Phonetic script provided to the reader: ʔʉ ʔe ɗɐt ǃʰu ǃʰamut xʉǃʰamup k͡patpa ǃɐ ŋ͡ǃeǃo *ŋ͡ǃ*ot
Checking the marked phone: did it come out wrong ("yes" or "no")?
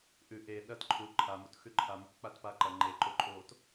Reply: yes